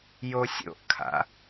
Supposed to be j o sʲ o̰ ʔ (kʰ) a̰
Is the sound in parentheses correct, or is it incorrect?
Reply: correct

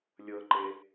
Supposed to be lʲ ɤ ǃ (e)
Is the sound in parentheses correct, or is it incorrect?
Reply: correct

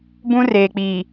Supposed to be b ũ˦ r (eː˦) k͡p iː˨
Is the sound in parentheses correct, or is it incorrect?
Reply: incorrect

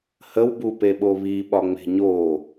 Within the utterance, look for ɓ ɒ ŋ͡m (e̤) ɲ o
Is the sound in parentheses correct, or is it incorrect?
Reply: correct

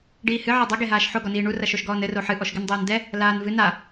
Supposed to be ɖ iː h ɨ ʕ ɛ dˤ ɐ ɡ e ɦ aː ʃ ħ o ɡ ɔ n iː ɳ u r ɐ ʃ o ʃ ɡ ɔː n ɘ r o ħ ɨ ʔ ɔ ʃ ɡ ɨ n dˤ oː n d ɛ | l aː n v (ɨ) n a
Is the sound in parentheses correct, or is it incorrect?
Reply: correct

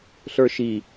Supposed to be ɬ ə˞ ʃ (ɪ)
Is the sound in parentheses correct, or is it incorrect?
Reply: incorrect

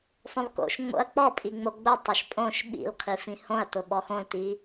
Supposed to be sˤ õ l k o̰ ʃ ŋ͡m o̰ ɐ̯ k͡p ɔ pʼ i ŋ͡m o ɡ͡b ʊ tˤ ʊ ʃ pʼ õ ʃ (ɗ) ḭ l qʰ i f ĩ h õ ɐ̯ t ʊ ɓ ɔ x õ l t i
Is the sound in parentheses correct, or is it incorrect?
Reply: incorrect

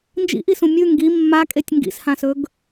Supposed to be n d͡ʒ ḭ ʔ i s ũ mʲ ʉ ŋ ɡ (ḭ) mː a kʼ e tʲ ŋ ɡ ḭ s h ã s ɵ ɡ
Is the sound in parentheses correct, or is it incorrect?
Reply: incorrect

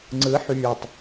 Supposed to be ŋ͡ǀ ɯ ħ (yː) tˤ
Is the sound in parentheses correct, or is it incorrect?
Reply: correct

